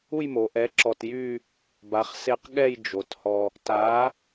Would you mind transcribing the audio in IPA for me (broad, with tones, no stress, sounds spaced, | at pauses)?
u˥˧ j m o˩˧ ʔ ɛ˨˥ ǁ ɔ˧ t j y˥˧ | b a˩˧ χ s e˧ q ɠ ɛ˥˧ j d͡ʒ o˩˧ t h ɔ˧ | t a˨˥